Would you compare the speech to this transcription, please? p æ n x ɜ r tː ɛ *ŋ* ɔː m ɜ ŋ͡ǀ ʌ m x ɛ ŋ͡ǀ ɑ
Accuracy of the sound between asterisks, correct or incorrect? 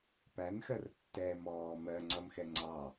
incorrect: m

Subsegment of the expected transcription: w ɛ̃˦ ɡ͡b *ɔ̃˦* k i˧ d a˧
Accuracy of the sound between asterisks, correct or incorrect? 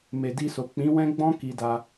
correct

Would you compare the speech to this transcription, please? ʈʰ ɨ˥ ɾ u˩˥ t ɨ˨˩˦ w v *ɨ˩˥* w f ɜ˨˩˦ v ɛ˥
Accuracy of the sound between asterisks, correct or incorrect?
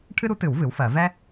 correct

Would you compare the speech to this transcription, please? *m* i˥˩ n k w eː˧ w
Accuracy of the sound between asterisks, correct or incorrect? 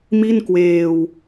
correct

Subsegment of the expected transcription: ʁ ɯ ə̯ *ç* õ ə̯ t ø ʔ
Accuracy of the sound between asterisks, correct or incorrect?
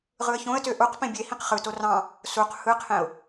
correct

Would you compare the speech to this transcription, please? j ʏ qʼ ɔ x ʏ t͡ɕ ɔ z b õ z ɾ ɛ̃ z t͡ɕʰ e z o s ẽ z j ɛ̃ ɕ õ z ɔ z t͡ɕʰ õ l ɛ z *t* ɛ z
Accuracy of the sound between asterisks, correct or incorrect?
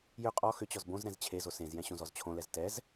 correct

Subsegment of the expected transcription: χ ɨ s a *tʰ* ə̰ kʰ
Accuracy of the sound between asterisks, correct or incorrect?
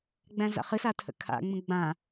correct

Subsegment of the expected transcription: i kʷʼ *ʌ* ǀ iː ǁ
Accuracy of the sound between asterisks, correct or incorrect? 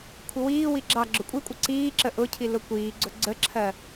correct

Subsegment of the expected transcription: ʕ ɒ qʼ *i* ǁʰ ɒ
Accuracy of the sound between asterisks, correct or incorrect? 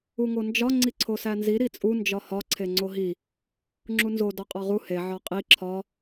correct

